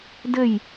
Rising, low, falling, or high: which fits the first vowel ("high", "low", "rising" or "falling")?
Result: falling